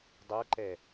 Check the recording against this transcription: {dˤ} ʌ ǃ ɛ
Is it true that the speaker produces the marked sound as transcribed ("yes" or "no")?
yes